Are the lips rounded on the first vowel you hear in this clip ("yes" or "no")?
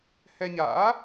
no